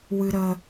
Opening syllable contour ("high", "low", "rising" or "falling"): high